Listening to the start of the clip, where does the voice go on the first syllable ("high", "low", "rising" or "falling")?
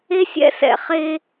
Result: high